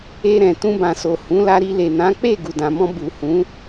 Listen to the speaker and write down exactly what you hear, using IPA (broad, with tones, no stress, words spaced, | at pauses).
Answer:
e˧ ɾɛ̃˨ tũ˧bã˨so˨ hũ˨˦la˧ɾi˧ le˨nã˨˦ k͡pe˦˨ ɡu˨dã˨mɔ̃˧ bu˨hũ˨˦